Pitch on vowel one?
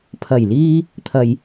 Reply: low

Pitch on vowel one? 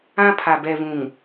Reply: high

